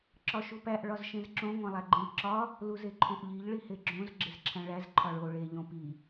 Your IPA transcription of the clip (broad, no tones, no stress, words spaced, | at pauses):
ǁɒʃupæʔ ɭɒzʃẽzǁõ ŋʷæ̃lˠæɡ͡ǃẽʎǁɒ | luzeǃʰõʔʎiʎ ɭiheɡ͡ǁõz ɡ͡ǁezǁʰæ̃ɭæz ǃʰɒɭo ɭe ʎõpi